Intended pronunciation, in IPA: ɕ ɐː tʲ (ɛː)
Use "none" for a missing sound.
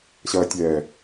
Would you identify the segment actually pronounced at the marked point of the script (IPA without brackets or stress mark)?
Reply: ɛː